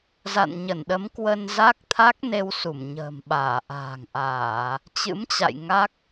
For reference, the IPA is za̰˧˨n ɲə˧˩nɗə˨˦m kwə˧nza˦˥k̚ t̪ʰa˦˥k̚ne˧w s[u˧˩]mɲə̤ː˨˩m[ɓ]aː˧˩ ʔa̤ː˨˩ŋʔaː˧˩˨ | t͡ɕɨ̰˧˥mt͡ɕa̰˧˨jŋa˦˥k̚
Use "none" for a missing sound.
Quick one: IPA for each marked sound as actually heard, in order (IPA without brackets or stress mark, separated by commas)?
u˧˩, ɓ